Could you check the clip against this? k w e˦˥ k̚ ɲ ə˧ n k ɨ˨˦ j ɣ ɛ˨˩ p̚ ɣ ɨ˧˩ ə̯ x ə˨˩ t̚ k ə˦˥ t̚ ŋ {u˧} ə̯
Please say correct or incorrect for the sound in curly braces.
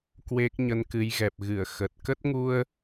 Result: correct